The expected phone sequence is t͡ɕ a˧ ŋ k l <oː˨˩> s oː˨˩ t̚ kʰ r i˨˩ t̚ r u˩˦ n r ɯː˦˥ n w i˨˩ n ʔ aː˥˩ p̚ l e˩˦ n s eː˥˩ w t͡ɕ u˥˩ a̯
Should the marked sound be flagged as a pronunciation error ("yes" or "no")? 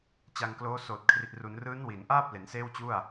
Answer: yes